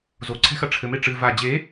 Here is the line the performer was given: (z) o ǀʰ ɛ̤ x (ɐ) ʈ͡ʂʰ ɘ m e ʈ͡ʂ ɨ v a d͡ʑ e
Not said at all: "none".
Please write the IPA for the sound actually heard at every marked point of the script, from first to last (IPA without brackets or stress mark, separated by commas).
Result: z, ɐ